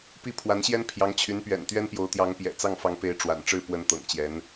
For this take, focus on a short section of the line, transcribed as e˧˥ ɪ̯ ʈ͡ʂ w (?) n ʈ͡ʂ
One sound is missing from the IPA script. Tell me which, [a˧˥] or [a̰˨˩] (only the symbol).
a̰˨˩